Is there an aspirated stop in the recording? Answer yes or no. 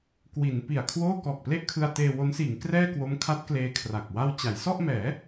yes